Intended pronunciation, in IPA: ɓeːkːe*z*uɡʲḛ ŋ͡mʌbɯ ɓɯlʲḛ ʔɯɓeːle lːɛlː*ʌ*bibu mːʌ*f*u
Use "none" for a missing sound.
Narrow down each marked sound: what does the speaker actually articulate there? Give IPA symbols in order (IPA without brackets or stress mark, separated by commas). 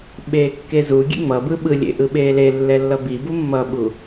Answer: z, ʌ, ɓ